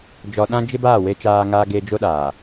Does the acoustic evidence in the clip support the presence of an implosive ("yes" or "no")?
yes